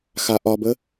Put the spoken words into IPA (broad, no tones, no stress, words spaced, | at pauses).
xaʔɒbə